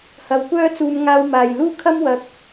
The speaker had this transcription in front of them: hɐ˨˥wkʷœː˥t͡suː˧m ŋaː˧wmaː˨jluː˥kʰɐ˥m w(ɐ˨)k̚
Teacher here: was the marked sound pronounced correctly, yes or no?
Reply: no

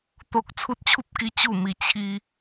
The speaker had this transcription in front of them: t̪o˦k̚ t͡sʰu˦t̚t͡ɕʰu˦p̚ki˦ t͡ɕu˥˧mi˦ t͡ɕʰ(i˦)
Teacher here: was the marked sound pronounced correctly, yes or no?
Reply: yes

